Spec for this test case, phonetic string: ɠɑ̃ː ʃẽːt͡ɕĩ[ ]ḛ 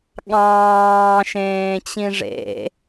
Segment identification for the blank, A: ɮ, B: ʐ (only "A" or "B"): B